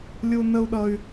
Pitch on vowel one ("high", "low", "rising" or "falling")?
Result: high